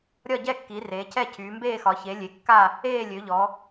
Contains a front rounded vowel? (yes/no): yes